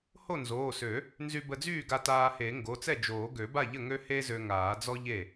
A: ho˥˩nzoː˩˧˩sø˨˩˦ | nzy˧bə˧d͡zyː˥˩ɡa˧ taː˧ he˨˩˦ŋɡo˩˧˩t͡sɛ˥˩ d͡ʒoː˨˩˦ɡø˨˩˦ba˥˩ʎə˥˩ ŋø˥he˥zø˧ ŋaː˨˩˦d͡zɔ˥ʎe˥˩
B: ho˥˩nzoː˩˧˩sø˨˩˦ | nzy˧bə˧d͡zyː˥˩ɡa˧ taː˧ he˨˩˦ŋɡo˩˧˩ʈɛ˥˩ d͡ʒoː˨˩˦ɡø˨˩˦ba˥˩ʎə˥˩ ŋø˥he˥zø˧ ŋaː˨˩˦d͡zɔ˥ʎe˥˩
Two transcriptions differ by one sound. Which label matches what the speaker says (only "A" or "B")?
A